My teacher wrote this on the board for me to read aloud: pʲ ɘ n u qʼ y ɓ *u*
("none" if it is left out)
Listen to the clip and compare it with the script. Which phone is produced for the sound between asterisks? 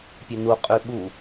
u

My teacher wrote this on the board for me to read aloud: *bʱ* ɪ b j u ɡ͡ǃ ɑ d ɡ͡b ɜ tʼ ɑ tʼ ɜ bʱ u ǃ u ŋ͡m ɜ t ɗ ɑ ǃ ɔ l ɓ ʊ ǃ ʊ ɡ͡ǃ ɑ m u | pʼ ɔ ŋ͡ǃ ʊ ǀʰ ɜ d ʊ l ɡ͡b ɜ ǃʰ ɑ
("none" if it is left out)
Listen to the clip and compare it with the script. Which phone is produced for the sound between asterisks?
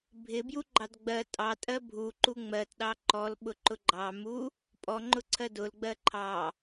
bʱ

